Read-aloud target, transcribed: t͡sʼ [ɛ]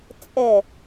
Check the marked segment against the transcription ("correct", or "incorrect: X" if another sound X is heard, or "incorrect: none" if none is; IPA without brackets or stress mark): correct